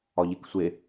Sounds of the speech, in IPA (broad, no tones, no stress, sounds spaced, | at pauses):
ɒ ʎ e k sʷ e